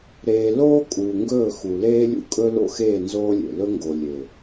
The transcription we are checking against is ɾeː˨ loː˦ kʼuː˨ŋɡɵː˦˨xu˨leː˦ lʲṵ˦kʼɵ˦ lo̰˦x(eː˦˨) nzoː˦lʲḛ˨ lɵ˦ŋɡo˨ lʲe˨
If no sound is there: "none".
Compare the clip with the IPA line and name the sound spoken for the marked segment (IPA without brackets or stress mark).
eː˦˨